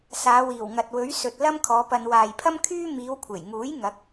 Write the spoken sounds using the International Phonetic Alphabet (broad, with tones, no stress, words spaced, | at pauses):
saː˨˧wiː˨˩wŋɐ˨t̚wɵ˨˥ɥ sɵ˨t̚ lɐ˥mkʰɔː˨˧pɐ˧n waː˨jpʰɐ˥mkʰyː˥ miː˨˧wkʷʰe˨˩jŋuː˨˥j ŋɐ˨˥k̚